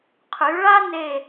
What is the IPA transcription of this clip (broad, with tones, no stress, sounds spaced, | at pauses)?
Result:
qʰ y˩˧ ɭ a˥ n e˧˩